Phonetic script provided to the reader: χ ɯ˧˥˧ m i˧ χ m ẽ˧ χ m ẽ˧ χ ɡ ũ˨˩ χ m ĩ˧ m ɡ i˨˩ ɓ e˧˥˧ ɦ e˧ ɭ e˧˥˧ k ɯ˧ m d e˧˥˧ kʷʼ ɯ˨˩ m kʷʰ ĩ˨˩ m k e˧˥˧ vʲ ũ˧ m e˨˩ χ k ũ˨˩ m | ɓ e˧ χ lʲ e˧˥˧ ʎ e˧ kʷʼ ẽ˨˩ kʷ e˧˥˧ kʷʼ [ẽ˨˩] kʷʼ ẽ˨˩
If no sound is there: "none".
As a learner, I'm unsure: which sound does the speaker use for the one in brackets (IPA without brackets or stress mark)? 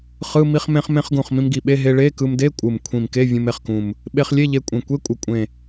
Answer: e˨˩